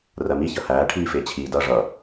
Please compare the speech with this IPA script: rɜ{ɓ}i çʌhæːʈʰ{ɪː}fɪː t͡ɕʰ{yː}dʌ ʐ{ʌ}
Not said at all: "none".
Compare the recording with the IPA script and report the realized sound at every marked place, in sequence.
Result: m, iː, iː, ʌ

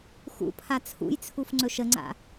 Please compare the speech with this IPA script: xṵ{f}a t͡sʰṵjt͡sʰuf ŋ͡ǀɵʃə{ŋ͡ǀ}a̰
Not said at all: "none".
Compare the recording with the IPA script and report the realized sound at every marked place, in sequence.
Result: pʰ, ŋ͡ǀ

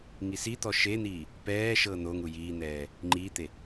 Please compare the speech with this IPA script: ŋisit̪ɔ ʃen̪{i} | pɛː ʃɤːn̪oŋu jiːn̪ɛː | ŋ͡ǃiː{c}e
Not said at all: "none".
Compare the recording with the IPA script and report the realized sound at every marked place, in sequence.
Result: iː, t̪

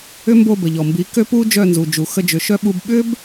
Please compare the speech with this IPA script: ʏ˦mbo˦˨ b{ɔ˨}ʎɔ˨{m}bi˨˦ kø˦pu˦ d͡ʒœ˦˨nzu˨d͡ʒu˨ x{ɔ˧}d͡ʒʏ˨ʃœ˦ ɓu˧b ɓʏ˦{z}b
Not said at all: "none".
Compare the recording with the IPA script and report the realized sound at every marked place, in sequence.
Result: ə˨, m, ə˧, none

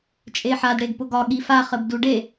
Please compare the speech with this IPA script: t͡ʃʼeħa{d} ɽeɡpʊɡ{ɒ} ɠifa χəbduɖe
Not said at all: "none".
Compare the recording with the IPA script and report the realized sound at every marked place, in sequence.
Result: d, ɒ

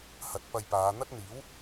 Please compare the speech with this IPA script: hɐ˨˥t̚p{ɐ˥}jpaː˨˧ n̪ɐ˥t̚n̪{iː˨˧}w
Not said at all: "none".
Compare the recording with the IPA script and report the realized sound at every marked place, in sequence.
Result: ɐ˧, iː˨˥

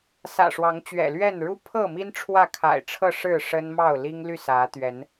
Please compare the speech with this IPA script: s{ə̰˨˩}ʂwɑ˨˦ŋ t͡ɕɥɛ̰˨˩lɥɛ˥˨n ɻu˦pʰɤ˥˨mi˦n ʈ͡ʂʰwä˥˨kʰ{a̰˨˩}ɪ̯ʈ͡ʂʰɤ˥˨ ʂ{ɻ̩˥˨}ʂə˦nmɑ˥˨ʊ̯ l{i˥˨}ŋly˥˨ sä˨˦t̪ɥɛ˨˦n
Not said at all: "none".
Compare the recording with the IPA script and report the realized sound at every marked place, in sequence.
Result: ä̰˨˩, a̰˨˩, ɻ̩˥˨, i˦

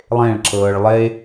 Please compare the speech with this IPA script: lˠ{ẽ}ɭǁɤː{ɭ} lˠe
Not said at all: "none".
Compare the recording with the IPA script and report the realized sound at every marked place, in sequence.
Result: ẽ, ɭ

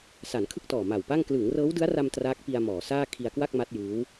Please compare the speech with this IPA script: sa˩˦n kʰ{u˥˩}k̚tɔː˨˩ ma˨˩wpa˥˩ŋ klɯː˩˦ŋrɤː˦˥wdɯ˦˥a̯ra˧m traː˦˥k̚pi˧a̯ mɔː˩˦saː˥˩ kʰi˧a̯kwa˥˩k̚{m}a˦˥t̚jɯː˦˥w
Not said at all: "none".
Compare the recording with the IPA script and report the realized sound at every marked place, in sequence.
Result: ɯ˥˩, m

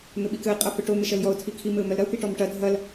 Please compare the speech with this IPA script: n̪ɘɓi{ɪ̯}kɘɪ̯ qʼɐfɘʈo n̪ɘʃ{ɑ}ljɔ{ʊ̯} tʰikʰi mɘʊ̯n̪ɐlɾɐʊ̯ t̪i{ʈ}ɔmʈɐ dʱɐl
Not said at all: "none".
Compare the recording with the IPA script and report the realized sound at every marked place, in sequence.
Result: none, ɐ, ʊ̯, ʈ

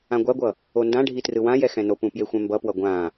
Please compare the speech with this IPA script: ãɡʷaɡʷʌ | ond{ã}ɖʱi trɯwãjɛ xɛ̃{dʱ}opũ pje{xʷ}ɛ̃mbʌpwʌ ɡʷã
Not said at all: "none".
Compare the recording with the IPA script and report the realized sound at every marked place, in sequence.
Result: ã, n, xʷ

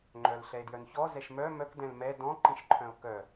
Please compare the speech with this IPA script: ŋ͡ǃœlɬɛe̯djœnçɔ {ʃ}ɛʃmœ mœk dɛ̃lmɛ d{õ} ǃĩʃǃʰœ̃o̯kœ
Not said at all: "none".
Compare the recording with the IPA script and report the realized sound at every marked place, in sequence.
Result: z, ɔ̃

